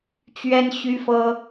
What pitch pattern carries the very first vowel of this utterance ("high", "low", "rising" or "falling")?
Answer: high